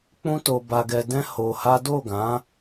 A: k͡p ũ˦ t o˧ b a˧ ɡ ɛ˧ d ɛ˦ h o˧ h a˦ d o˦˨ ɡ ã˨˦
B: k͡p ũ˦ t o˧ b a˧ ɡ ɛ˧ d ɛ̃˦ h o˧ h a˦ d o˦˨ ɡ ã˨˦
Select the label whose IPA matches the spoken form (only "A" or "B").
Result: B